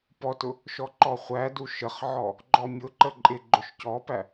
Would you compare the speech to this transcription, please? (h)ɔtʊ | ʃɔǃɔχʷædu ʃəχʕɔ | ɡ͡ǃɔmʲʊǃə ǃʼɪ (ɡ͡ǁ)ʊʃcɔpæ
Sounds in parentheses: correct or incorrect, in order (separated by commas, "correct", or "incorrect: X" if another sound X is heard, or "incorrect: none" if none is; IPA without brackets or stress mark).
incorrect: p, incorrect: ɡ͡ǃ